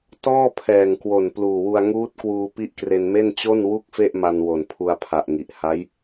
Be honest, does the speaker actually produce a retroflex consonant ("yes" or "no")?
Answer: no